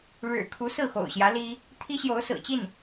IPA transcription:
ɻ ɻ̩˨˩ kʰ u˧˥ s ɹ̩˥˩ x o̰˨˩ ʊ̯ ɕ j ä˧˥ l i˥ | t̪ʰ i˥ ɕ j o˧˥ ʊ̯ s ɹ̩˨˩ t͡ɕ i˥˩ n

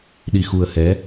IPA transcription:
ɗ i˧ x u˧ ə̯ h ɛ˧˥

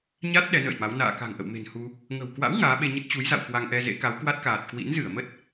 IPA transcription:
ɲ a˦˥ t̚ ɗ ɛ˨˦ n ə̰ː˧˨ j m a˨˦ w n a̰ː˧˨ k a̤˨˩ ŋ ʔ ə̰˧˨ w m e̤˨˩ n h u˧ | ŋ ə̤˨˩ w k w a̰˧˥ w ŋ aː˨˦ ɓ e˧ ɲ ə˦˥ t̚ t͡ɕ u˨˦ j z a̰˧˨ w k w a˧ ŋ ʔ ɛ˧ z ḛ˧˥ k a˨˦ w k w a˦˥ t̚ k aː˨˩ t̚ k w ḭ˧˥ n z ɨ˧˩ ə̯ m ə˦˥ t̚

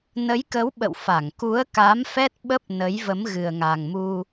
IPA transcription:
n ə˨˦ j k ə˨˦ w ɓ ə̰˧˨ w f a˧˩ ŋ k u˨˦ ə̯ k a˨˦ m f ɛ˦˥ t̚ ɓ ə˦˥ p̚ n ə˨˦ j v ə˨˦ m ɣ ɨ˨˩ ə̯ ŋ a˨˩ ŋ m u˧

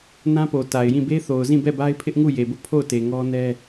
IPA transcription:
n ã˦ p o˨ t a˨ ɪ̯ j ĩ˦˨ b e˦ θ o˨ ʊ̯ z ĩ˦˨ b ɛ˦˨ b a˦ ɪ̯ pʰ ɪ˦ ʔ ŋ u˦˨ j e˨ b ʊ˦ ʔ pʰ o˦˨ ʊ̯ t e˨ ŋ ɔ˦ n ɛ˦

